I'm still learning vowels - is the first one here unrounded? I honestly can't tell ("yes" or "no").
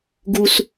no